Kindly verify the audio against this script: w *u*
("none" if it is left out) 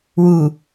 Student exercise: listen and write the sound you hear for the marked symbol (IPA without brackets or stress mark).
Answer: u